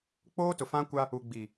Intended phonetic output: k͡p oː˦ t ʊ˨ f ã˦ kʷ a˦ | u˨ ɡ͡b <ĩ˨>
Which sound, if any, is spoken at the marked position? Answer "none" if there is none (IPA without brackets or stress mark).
i˨